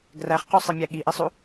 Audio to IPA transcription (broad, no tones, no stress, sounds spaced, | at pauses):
ɡ r æ χ q u sˤ i mʲ æ ɠ i ʔ i sˤ u